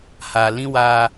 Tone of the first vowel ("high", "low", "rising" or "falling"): low